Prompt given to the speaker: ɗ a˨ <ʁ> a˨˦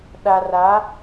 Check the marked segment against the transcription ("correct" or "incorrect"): incorrect